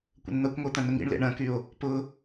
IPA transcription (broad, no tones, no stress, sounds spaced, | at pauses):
kʷ ə̰ n n̪ ɐ kʷ ŋʷ e t̪ ɐ̃ n ʊ ŋ ḭ ɳ l ḛ ɳ ɐ̃ k y o̯ | p ʊ